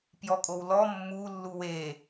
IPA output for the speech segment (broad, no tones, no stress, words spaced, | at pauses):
pjɔkʼowlɔ mːu lːuwe